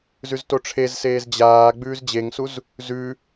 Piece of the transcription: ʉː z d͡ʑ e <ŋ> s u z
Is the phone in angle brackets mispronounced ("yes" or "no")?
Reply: no